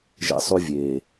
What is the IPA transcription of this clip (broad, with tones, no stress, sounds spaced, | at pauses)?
ʒ ɛ̰˦ sˤ y˦ vʲ eː˨